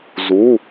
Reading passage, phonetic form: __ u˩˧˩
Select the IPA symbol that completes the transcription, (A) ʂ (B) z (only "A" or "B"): B